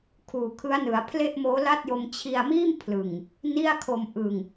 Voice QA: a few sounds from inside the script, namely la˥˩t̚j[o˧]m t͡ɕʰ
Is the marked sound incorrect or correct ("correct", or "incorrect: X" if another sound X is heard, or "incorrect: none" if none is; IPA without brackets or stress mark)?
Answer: correct